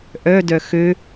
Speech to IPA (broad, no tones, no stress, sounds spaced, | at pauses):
ʔ œ d œ x ø